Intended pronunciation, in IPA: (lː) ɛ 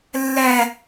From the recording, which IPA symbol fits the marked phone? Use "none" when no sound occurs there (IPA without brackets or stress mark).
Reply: lː